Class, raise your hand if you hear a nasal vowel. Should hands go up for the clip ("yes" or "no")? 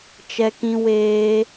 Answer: yes